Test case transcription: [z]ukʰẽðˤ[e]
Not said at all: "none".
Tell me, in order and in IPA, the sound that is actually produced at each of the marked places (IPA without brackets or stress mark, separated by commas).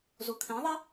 z, e